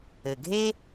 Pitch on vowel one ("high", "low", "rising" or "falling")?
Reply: low